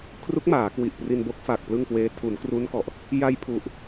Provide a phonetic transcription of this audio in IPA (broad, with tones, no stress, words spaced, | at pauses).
kʰru˦˥k̚maː˩˦kwi˨˩ʔpri˧n bo˦˥k̚fa˨˩k̚ plɯ˥˩ŋkweː˦˥ tʰu˩˦n kru˦˥nkɔ˨˩ʔ | ja˧jpʰu˨˩ʔ